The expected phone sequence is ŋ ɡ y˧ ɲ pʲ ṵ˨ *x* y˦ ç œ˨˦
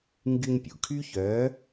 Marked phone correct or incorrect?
incorrect